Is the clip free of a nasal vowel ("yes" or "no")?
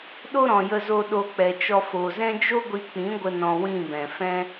no